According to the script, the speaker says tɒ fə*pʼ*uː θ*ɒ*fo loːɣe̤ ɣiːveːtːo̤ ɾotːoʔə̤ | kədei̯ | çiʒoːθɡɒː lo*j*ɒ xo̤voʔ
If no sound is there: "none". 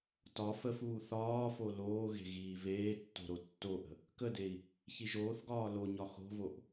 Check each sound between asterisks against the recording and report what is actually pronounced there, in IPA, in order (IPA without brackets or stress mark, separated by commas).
f, ɒː, ɲ